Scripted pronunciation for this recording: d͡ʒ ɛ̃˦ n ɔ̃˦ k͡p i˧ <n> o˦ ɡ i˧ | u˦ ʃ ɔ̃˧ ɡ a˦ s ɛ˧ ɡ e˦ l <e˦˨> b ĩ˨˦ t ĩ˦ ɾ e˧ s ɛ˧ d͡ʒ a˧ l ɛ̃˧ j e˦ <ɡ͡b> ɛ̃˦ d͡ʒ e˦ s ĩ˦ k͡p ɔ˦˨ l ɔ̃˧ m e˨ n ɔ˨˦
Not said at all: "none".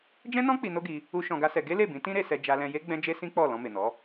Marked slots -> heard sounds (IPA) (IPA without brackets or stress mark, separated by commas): n, e˦˨, ɡ͡b